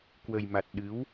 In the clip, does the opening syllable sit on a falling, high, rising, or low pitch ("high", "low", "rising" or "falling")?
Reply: low